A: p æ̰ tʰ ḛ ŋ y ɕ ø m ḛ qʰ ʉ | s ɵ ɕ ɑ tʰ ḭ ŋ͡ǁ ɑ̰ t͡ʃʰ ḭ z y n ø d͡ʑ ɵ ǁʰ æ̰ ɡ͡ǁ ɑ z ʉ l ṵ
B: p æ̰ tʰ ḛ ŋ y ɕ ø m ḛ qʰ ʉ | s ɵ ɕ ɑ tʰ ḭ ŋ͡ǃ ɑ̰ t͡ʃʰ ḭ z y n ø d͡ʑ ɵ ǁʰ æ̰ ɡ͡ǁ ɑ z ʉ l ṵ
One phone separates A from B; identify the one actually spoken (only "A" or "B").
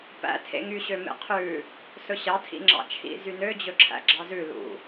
A